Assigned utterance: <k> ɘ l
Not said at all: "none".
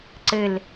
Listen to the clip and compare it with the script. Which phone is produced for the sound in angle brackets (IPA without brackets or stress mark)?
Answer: ǀ